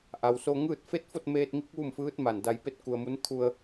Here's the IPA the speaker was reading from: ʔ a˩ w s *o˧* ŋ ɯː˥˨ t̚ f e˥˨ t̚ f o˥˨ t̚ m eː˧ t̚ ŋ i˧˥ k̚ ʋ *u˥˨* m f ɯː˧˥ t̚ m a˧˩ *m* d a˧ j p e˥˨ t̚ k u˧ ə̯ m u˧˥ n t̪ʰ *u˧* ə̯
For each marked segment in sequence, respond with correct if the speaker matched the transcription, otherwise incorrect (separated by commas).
correct, correct, incorrect, correct